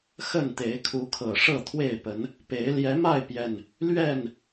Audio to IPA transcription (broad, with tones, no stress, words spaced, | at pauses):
xə˥˨nt̪e˨˦ɪ̯kʰu˨˦kʰɤ˨˩ ʂɤ˥˨t̪ʰwe˥˨ɪ̯pə˨˦n | pe˨˦ɪ̯ ljɛ˨˦ma˥˨ɪ̯pjɛ˨˩n | lɥɛ˥˨n